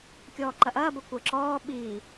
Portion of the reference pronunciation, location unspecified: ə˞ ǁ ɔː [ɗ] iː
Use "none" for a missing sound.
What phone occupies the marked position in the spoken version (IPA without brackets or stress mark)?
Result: ɓ